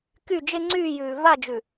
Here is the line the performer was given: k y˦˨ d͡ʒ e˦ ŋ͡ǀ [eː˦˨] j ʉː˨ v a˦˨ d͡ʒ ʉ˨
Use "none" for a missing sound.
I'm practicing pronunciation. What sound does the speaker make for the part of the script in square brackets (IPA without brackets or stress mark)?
yː˦˨